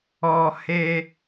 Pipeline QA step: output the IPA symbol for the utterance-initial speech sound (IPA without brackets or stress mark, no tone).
ɔ